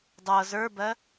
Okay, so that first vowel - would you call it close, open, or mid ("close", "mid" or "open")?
mid